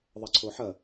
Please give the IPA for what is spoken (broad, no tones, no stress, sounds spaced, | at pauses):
ðˤ ɐ ǀʰ o ħ ɐ